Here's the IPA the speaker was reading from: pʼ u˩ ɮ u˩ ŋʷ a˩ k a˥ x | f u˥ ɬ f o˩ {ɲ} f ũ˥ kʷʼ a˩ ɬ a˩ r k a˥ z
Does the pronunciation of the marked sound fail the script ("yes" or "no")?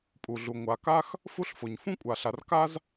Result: no